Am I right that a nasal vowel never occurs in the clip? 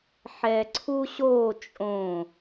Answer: no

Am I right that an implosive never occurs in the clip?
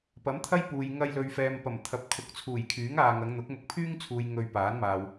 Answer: yes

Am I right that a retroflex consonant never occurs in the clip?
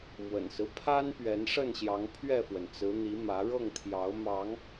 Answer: no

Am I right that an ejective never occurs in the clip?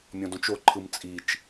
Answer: no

